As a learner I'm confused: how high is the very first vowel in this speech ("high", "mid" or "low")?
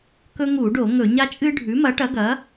mid